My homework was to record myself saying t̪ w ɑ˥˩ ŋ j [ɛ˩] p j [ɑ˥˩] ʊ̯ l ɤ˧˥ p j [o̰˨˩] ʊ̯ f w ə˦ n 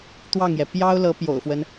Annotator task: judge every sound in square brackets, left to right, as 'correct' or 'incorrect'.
correct, incorrect, correct

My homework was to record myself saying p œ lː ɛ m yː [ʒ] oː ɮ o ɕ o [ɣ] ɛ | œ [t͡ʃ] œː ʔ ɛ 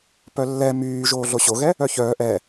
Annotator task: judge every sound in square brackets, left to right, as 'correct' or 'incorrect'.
correct, correct, incorrect

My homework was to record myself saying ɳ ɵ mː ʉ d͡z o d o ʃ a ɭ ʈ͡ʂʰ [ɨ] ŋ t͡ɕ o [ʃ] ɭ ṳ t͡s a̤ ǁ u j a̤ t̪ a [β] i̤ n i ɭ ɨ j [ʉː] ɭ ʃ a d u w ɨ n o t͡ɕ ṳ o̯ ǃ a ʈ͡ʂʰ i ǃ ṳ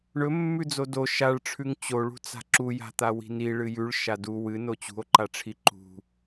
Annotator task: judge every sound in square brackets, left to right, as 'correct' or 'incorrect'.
incorrect, incorrect, incorrect, incorrect

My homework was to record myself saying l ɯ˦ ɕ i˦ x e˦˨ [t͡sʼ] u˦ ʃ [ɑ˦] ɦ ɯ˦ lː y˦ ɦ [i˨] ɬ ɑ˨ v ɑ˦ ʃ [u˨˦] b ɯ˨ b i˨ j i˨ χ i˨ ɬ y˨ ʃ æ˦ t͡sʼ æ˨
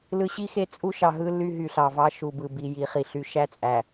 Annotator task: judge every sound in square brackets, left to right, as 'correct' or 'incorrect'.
correct, incorrect, incorrect, incorrect

